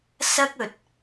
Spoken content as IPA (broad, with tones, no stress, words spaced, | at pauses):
sɐ˥k̚ɵ˨t̚